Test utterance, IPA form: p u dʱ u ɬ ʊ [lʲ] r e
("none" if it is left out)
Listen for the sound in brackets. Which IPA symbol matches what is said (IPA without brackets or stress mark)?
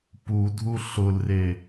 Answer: l